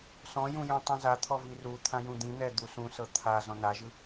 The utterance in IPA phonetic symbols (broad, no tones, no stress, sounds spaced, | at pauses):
s ɔ̃ j ũ j ũ tˤ ĩ z a t̪ʰ ɔ v i r u t̪ʰ ã j ũ d̪ ĩ n̪ ɛ d̪ u s ũ s ɤ t̪ʰ a z ɔ̃ n a ʒ ɯ